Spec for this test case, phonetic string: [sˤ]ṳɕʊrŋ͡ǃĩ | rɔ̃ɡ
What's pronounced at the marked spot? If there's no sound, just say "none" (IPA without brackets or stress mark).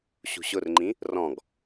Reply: ɕ